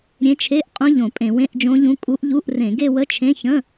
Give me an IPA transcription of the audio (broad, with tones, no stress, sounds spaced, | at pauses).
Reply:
ɾʲ ẽ˧˥ t͡ʃʰ e˧˥˧ ʔ qʼ ũ˧˥ ʎ õ˧˩˧ pʼ ẽ˧˩˧ w ẽ˧˥˧ ʔ d͡ʒ õ˧˥ ʎ ũ˧˥ kʼ u˧˥ ʔ ʎ u˧˥˧ ʔ r ẽ˧˩˧ ɡ e˥˧ w ə˧˥˧ t͡ʃʰ ẽ˧˥˧ ç ə̃˧˥˧